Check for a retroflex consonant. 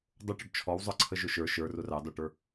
present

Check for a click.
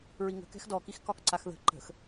present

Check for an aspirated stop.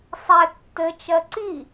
absent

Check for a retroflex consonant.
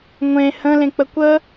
absent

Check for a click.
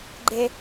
present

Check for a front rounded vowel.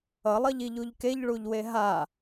absent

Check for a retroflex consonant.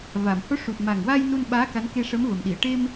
present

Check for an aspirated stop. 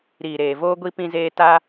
absent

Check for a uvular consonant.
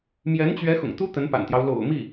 absent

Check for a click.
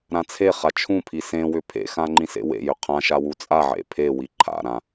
present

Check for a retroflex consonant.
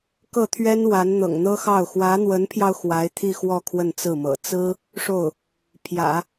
present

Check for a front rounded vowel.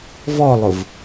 absent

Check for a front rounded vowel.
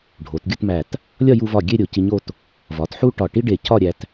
absent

